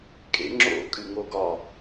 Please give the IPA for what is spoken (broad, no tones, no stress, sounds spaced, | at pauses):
kʼ ḛ ŋ͡ǁ o̰ kʼ ɨ ŋ o ɡ ɒ